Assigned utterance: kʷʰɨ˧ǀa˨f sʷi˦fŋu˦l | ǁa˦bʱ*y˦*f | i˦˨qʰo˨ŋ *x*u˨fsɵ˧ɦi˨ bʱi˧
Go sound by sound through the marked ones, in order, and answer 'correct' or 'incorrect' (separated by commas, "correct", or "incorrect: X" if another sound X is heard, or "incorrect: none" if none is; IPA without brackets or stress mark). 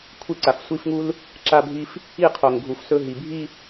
incorrect: i˦, incorrect: ɡʱ